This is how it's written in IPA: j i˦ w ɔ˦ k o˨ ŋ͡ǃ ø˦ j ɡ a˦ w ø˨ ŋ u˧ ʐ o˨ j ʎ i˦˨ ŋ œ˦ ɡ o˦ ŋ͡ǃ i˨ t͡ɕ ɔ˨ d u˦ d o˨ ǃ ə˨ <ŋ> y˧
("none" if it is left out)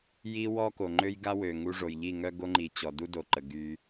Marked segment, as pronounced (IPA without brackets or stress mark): ɡ